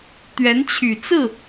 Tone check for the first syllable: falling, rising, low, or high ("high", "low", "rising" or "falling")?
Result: rising